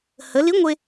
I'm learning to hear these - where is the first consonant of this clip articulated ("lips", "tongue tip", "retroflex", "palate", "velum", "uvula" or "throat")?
throat